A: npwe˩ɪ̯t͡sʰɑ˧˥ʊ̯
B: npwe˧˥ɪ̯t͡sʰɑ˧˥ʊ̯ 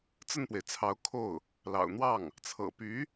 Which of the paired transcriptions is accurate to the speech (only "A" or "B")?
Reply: A